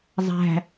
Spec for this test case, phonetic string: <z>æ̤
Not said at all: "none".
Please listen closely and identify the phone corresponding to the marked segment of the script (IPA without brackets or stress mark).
zˤ